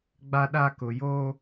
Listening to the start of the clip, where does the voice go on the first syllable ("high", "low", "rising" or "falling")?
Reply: high